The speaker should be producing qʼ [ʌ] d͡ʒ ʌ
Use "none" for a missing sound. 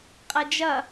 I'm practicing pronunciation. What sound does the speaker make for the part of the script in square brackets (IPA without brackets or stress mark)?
ʌ